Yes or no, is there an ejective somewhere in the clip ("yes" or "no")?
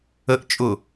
yes